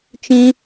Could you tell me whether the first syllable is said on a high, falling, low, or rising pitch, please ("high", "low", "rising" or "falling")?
high